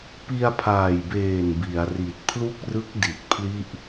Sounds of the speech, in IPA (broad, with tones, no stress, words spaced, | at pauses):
pi˧a̯pʰaː˨˩jbeː˨˩n bi˩˦a̯ri˨˩t̚ pʰlu˥˩k̚rɯ˦˥k̚ di˨˩t̚pʰli˥˩ʔ